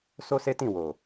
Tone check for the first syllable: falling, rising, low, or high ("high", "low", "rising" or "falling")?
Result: high